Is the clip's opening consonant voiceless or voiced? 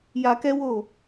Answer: voiced